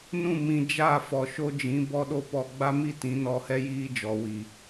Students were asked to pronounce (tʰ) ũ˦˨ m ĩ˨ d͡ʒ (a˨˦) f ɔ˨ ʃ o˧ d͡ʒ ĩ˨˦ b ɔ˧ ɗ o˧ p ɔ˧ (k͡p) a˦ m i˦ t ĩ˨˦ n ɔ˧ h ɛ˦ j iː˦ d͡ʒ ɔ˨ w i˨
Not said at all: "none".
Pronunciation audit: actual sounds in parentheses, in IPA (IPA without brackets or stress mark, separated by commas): n, a˦˨, ɡ͡b